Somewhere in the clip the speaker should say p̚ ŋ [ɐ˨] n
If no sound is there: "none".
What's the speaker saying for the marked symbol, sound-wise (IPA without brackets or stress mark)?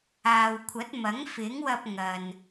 ɐ˨